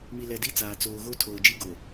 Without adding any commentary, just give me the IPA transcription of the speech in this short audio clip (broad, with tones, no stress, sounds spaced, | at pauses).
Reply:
m i˨ l ɛ˨ d i˦ t͡s aː˨ t͡s oː˨ ɣ o˦ tʰ oː˨ d͡ʒ i˦ ɡ o˨